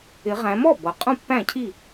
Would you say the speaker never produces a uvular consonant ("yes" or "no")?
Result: no